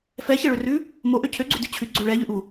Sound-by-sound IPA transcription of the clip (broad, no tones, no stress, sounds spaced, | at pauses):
f ɛ ç ɛ ɭ ø r ʉ | m o ʔ ø cʰ ø ɡ͡ǀ ʉ d ʉ t͡ɕʰ ʉ ɡ͡ǀ ø ɭ ɛ ʎ ʉ ʔ u